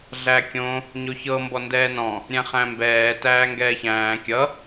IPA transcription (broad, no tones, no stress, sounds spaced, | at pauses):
ɮ æ kʲ õ | ɲ o ç ɤ m b ɔ n d ɛː n ɔ̃ | ɾʲ æ̃ χ æ̃ m b ɛː t æː ŋ ɡ ɛː ç æ̃ː kʲ ʌ